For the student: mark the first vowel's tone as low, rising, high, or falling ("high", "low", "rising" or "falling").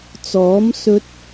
rising